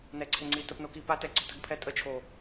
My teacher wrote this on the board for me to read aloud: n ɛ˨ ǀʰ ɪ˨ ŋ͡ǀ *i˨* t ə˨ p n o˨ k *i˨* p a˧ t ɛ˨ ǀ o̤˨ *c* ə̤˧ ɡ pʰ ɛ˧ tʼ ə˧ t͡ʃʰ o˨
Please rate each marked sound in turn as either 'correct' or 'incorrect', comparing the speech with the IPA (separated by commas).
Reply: correct, correct, incorrect